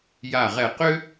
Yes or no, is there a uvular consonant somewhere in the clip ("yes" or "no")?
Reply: yes